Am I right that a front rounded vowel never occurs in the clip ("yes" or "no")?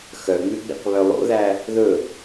no